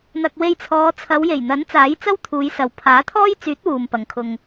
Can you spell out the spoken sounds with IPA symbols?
n̪ ɐ˨ k̚ w e˧ j t͡sʰ ɔː˨˧ t͡sʰ ɐ˨˧ w j e˨˩ j n̪ ɐ˨˥ n t͡s aː˨˥ j t͡s ɐ˥ w t̪ʰ uː˨˧ j s ɐ˨ w pʰ aː˨˥ t̪ʰ ɔː˥ j t͡s yː˨˥ t̚ w uː˨ m p ɐ˨ ŋ kʰ ʊ˧ ŋ

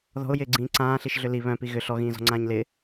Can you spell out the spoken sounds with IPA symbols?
ð ɔ̤ ʊ̯ j ɪː ɡ͡ǀ ĩː ǀ ãː ɬ i ʃ ɮ ʏ l i β œ̃ p i ɣ ʏ ɬ ɔ ɣ ĩː z ɔ̤ ŋ͡ǀ ãː ɲ l ɪ

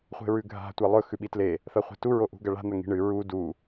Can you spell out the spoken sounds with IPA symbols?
χʷ e̤ ɹ ʉ ɡʱ a̤ tʷ a lˠ ɵ x ʉ ɓ i t l e | θ ɐ χʷ e̤ t u ɹ o ʔ ṳ ɡ ɐ ɭ a̤ n̪ ɐ ŋ i̤ ɳ ɨ ɹ u d u

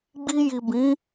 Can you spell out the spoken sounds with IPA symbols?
ɡ͡b i˧ j i˨ b ĩ˨˦

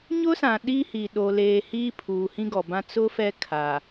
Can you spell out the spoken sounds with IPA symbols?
ɲ ʊ˦ s ã˨ ɗ i˦ h i˨ ɗ o˨ l eː˨ h iː˦ pʰ uː˨ h ĩ˦ ɡ ɔ˨ b ã˦ t͡s ʊ˦ f ɛ˦ kʰ a˨

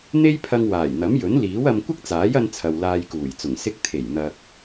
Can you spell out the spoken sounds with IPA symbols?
n̪ e˥ j pʰ ɐ˧ ŋ w aː˨˩ j n̪ ɐ˨˥ m j ɵ˨˥ n l iː˨˥ w ɐ˧ m kʷ ɪ˥ k̚ t͡s aː˨˥ j ɐ˧ n t͡sʰ ɐ˨ w l aː˧ j k uː˨˩ j t͡s ʊ˨˩ ŋ s ɪ˧ k̚ t̪ʰ e˨˩ j n̪ ɐ˨ k̚

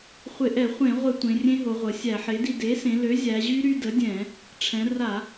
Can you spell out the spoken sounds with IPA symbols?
χʷ ɪ˧˩˧ ʔ ɛ˧˩˧ χʷ ẽ˧˩˧ ʁʷ ɪ˧˩˧ tʷ ẽ˩˧ rʲ ẽ˦˥ ɦ o˩˧ ʁʷ ə˩˧ sʲ æ˧˩˧ ħ e˩˥ d i˧ d e˩˥ s ẽ˩˧ l ø˩˥ zʲ æ˩˧ ʑ y˦˥ ɾ y˧ d ə˩˥ dʲ ɛ̃˧˩˧ | ʈ͡ʂʰ ɛ̃˩˧ r a˧˩˧

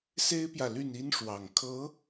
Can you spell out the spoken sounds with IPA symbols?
s e˥ ɪ̯ p j ä˨ l y˥˩ n i˥ n ʂ w ɑ˨˩ ŋ kʰ ɤ˧˥

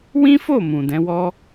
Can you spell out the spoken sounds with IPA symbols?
w ĩ˦ f o˦˨ m ũ˨ d ɛ̃˨˦ w ɔ˦

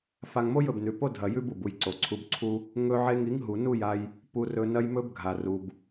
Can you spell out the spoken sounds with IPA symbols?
f a˧ ŋ m o˦ j ɵ˨ b n ʉ˨ p o˦ dʱ ɐ˧ j ʉ˦ b u˨ b u˧ j ǀ o˨ ǀʰ u˧ b ǀʰ u˦ | ŋ ɵ˧ ʕ e˧ ŋ i˨˦ ŋ ɦ u˨ n u˦˨ j a˧ j | p u˧ r ɵ˧ n ɐ˦ j m ɵ˦ b ɡʱ a˨ r u˨ b

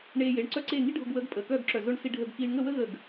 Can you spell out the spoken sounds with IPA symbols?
ɳ eː˧ j e˩˧˩ ɳ ǀ œ˥˨ ǀ eː˥˨ ŋ i˥ ɖʱ ʊ˧ ɡ w əː˨˥ ɡ pʼ əː˩˧˩ k œː˥˨ ɡ ǁ œ˧˩ z ʊ˥˨ ɳ s i˧ ɖʱ əː˧ ɡ k iː˧ ɳ ŋ ə˥˨ w ə˥ ɣ ə˧˩ ɡ

